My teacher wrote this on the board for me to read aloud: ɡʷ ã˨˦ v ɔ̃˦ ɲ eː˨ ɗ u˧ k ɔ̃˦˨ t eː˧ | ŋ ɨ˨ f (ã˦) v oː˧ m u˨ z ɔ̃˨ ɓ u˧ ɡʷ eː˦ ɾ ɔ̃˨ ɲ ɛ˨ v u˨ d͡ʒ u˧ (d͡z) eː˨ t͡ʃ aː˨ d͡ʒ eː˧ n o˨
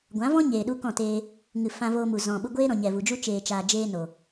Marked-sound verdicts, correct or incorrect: incorrect: ã˧, incorrect: t͡ʃ

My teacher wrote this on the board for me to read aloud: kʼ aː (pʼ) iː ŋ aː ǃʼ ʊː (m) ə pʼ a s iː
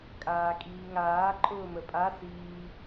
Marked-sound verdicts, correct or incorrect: incorrect: kʼ, correct

